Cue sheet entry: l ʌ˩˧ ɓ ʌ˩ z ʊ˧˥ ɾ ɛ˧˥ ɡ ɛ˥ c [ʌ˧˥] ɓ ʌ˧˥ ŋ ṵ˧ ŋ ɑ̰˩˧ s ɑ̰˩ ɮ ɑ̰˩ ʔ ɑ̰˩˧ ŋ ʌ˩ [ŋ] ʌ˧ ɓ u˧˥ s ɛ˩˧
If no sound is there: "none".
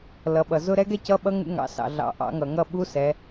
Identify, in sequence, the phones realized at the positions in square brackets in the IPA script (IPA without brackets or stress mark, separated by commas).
ʌ˧˥, ŋ